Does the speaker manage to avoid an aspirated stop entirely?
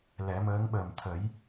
no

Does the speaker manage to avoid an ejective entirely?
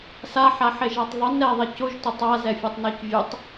yes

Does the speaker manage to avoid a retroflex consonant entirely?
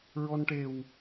no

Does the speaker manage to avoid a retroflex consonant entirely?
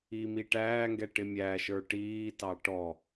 no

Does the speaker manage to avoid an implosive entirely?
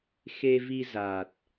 yes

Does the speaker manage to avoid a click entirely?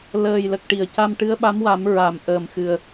yes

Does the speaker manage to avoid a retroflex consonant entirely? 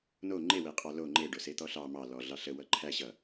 no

